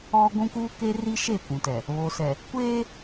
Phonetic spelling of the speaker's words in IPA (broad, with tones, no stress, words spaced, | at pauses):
ɔ˦ ɡʷũ˦kuː˦ke˦ri˦ ʃe˦˨kʷũ˨tɛ˨ | βo˨sɛ˨ | kʷeː˦